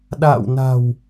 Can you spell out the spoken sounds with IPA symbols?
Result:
ɗ a̰ː˧˨ w n a̤˨˩ w

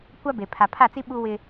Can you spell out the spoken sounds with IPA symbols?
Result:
kʷ a˦ b e˨ pʰ a˨ pʰ a˦˨ t͡s i˦ ɓ u˦ w ɪ˦

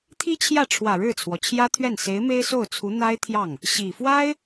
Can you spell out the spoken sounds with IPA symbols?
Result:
t̪ʰ i˥ t͡ɕʰ j ä˥˩ ʈ͡ʂʰ w ä˨˩ ɻ ɻ̩˥˩ t͡sʰ w ɔ˩ t͡ɕʰ j ä˥ t̪ʰ ɥ ɛ˥˩ n s e˧˥ ɪ̯ m e˥ ɪ̯ s o˥˩ ʊ̯ t͡sʰ u˧˥ n̪ a˥ ɪ̯ t̪ʰ j ɑ˥˩ ŋ | ɕ i˨˩ f w a˥ ɪ̯

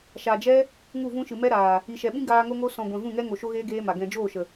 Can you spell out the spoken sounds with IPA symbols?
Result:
ʃ a˨ d͡ʒ ɛ˦ | ŋ u˦˨ v ũ˦ ʃ ɨ˨ m ɛ˦ ɾ aː˨ | i˨ ʃ ɛ˨ ɓ ĩ˦ ɡ aː˧ ŋ o˧ ŋ o˧ s ɔ̃˨ ɡʷ ɛ̃˨ v ũ˦˨ ŋ ɛ˦ ŋ o˨ ʃ o˦ ɣ eː˦ ɡ eː˦ m a˨ ɡ ɛ̃˨ d͡ʒ oː˦˨ ʃ ə˨

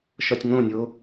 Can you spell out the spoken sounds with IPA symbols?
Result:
ʃ ɒ tʲ ŋ õ nʲ o

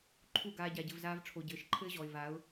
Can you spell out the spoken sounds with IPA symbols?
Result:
ǃʰ u˦˨ ɡ aː˧ ɟ a˨ ɟ ɘ˨ v z aː˧ v ʈ͡ʂʰ o˨ ɟ ɘː˨ ʃ ǃʰ ɘː˦ ʑ ɔ˨ ɪ̯ v a˨˦ ʊ̯

